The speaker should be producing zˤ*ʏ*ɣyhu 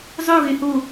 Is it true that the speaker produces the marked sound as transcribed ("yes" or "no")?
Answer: no